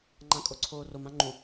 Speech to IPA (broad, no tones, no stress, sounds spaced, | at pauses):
ŋ͡ǃ ã kʼ o ǀʰ oː r o m ã ŋ͡ǃ ũ